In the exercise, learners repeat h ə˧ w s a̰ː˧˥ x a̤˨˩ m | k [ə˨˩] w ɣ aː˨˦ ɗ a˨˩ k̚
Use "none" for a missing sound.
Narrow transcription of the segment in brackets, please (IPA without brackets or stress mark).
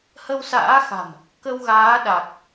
ə˧